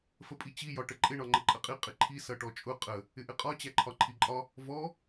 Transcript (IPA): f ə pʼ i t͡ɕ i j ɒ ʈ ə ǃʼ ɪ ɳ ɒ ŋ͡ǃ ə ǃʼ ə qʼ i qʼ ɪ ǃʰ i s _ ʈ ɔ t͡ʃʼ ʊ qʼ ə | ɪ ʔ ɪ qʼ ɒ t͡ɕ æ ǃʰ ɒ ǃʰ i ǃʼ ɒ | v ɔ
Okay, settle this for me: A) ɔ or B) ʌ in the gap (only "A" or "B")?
B